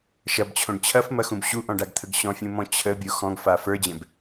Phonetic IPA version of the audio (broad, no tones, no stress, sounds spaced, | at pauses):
ʃ ɐ b t͡ɕʰ õ ɖ t͡ɕʰ ɐ f m ɐ x ũ b ɕ u ʔ ɔ̃ ɖ a ɡ t̪ʰ ə ɡ ɕ ɔ̃ fʲ ũ m ɔ̃ t͡ɕʰ ə bʲ o x ɔ̃ ɡ f a f ə˞ d͡ʑ ɛ̃ b